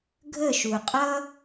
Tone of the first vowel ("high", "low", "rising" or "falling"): falling